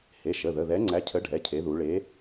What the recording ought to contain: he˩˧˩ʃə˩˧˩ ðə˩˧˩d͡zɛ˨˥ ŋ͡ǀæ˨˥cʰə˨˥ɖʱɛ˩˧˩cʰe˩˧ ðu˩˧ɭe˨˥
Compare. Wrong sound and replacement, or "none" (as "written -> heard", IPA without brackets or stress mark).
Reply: d͡z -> ð